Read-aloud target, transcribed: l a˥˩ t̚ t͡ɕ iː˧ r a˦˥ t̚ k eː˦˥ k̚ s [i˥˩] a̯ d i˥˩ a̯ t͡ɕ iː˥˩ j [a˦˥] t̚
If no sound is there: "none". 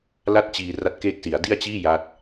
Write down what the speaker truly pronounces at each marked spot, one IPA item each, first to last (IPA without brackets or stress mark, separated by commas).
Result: i˩˦, a˦˥